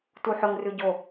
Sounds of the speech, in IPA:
t u ħ ɵ ŋ r ʉ ɟ o

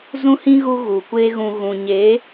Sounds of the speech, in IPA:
z ũ˦ h ĩ˦ ɣ u˦ ɣ u˨ kʷ e˦ ɣ ũ˧ ɣ ũ˨ ɲ eː˨˦

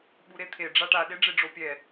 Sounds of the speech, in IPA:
ɓ u ɾ e t̪ʰ e ɖ͡ʐ a ʈ a ɗ e ɖ͡ʐ e ɖ͡ʐ o pʲ ɛ

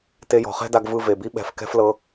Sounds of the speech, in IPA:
t e˧ j ɔ̤˨ χ ɛ̤˦ d a˧ ɡ v ɯ˧ v e˨ b i˦ ɓ ɛ̤˨˦ f k ɛ̤˦ f l ɤ˧

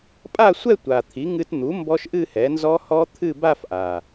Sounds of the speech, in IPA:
pʼ a˥˧ sʷ ɛ˥˧ tʷ a˨˩ t̪ʰ i˩˥ ŋ ɨ˧ t n̪ u˩˥ m b ɔ˦˥ ʃ ʔ ɨ˥˧ h ɛ˩˥ n z ɔ˦˥ h ɔ˦˥ t̪ʰ ɨ˥˧ b a˥˧ f ʔ a˨˩

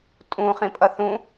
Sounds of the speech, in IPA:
tʼ ũ χ ĩ pʼ ʌ θ ũ

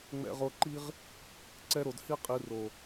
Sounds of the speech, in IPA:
ŋ͡m ɛ̰˧ ʁ o˧ ǃ i˦ ʁ | ǀ ɛ˦ ɾ o˧ d h i˦ qʼ i˨˦ r o˨

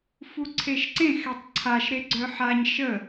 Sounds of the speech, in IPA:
f u ǀʰ e ʃ ǀ ẽ x ɛ tˤ ǀʰ a ʃ ɾ e ɡ͡ǀ œ ħ a ɲ ʃ ə

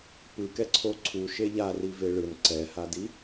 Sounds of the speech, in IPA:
p ɯ k ɛ ǀʰ o ǀʰ u ʃ e ʎ a r i v e ɭ ɯ n ǀ ɛ h a d i

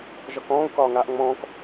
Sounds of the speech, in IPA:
ʒ ɒ k ɔ̃ː u̯ k ɒː ŋ aː ʔ ŋ͡m ɔ̃ː k

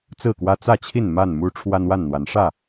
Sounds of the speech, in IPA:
t͡s ɹ̩˥˨ k w ä˦ t͡s ä˥˨ t͡ɕʰ i˥˨ n m a˥˨ n m u˦ ʈ͡ʂʰ w a˦ n w a˥˨ n n̪ w a˨˦ n ʂ ä˥˨

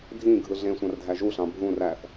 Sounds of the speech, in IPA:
dʱ ĩ ɡʱ ɯ ɮ ẽ sʷ ɑ̃ r dʱ æ ʒ u ɬ ɑ̃ bʱ ũ r æ θ

